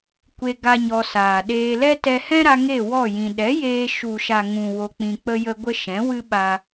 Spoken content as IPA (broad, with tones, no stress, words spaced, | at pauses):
kʷe˧ ɡa˦ɲɔ˧saː˨ɗeː˦ lɛ˦tɛ˧ hɛ̃˦ɾa˧ ŋe˦˨ wɔ˦˨jĩ˨ ɗɛ˨˦jeː˧ʃu˨ʃa˨ ŋũ˨ wo˧k͡pĩ˧k͡pə˦jə˦ ɡʷə˦ʃɛ̃˨˦wɨ˦ɓa˧